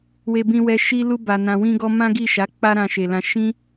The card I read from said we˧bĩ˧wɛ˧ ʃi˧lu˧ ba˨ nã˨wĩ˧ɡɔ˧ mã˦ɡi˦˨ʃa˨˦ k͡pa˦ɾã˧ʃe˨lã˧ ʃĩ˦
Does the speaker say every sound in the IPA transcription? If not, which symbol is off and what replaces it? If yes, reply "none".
none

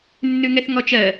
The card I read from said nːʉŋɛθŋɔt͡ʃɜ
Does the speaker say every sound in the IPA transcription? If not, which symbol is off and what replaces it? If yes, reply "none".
none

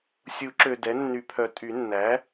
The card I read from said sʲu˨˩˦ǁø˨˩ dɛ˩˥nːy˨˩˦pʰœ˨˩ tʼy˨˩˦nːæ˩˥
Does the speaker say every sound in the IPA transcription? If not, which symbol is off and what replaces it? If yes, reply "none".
none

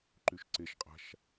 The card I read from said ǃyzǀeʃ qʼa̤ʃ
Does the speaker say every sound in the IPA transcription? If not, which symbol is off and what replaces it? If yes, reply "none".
z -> ʃ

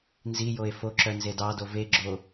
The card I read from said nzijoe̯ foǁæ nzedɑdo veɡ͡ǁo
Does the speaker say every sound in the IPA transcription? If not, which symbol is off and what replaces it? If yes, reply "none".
æ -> œ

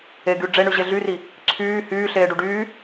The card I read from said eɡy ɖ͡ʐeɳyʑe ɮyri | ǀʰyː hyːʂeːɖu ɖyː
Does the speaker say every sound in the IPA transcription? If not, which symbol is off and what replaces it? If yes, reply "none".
ʂ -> ɬ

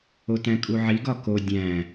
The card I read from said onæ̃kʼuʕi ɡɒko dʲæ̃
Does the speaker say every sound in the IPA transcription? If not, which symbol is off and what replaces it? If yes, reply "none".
n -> t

